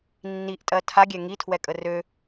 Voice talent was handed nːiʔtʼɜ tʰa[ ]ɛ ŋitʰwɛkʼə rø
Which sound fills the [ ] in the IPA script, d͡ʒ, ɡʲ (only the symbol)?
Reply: ɡʲ